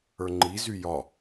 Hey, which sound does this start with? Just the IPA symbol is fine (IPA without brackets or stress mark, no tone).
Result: ə˞